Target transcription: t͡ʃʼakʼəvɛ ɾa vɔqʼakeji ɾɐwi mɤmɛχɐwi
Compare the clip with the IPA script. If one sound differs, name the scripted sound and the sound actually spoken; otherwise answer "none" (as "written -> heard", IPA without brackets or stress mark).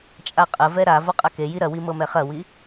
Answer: kʼ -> qʼ